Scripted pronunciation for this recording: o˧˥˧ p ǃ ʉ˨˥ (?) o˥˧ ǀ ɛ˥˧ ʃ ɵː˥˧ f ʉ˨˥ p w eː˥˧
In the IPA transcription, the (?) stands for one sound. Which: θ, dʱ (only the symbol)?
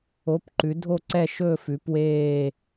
dʱ